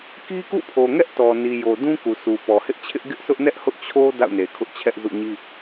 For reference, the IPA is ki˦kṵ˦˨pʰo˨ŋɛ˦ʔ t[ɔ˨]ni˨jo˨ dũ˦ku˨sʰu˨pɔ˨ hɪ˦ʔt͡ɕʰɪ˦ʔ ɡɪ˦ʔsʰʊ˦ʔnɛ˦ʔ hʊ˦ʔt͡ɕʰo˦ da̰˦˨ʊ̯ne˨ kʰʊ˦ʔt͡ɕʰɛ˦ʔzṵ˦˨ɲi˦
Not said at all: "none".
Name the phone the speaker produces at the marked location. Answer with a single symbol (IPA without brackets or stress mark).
ɔ˨